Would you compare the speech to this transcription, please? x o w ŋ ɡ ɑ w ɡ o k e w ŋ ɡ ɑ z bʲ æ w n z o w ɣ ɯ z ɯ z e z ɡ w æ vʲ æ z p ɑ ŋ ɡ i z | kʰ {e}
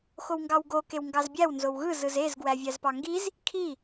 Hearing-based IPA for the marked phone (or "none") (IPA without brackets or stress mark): i